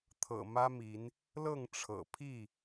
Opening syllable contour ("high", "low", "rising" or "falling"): low